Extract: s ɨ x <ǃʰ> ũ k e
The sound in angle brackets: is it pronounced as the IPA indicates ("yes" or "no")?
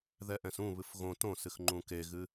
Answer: no